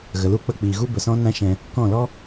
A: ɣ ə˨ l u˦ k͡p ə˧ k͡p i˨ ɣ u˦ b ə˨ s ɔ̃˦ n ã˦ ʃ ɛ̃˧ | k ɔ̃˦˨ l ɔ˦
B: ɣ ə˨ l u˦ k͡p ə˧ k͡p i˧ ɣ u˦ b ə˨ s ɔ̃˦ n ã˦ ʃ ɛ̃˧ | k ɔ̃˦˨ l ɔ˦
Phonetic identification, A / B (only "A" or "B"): A